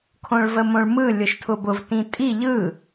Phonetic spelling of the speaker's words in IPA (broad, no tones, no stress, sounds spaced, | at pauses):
kʰ õ ɭ v ə m õ ɭ m ɯ lʲ ʊ ʃ tʰ ʊ b ʊ v t ĩ tʼ i ʎ ɯ